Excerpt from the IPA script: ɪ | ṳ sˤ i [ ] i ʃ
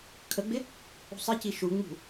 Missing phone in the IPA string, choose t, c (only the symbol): c